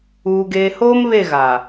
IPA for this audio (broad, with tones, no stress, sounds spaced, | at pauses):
uː˨ ɡ eː˨ h oː˦ m β e˦˨ ɣ a˨